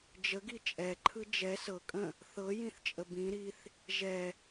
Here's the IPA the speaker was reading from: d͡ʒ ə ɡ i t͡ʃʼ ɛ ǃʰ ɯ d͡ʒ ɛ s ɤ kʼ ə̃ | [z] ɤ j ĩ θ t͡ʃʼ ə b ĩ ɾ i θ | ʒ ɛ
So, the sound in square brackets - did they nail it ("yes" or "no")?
no